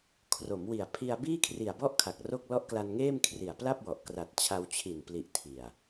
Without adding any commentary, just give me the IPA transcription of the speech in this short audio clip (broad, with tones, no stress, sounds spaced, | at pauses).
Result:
kʰ r o˩˦ m w i˨˩ a̯ pʰ i˧ a̯ b iː˥˩ kʰ r i˨˩ a̯ b ɔ˥˩ ʔ kʰ a˨˩ k̚ r o˥˩ k̚ l ɔ˦˥ ʔ k l a˧ n ŋ eː˥˩ m kʰ r i˨˩ a̯ p l a˥˩ p̚ w ɔ˨˩ ʔ k r a˨˩ t̚ t͡ɕʰ a˧ w t͡ɕʰ i˨˩ n p l i˨˩ ʔ tʰ i˨˩ a̯